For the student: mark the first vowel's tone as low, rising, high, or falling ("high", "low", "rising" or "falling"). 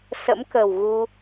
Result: rising